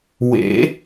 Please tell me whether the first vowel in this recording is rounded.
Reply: no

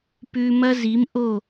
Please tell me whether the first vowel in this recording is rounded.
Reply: yes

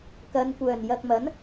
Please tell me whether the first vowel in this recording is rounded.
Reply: no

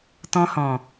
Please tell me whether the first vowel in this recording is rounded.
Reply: yes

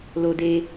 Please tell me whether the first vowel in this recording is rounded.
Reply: yes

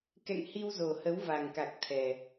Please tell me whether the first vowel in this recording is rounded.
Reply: no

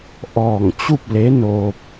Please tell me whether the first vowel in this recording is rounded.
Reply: yes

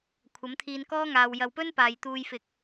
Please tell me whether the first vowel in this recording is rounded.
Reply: no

